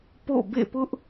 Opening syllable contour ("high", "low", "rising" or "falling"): falling